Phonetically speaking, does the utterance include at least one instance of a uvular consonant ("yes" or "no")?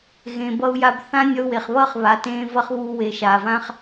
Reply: yes